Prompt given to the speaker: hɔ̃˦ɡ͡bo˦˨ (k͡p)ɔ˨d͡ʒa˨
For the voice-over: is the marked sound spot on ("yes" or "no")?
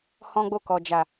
no